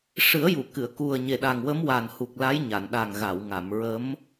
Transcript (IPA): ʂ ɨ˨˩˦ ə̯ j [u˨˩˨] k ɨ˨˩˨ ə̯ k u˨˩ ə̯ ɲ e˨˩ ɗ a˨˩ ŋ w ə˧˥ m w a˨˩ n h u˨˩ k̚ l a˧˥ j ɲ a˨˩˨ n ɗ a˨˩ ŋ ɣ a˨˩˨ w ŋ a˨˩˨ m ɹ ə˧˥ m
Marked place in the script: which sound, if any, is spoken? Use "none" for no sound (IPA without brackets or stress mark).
u˨˩˨